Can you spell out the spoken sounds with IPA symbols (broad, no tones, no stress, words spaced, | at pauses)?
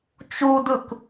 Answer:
t͡ʃudɯk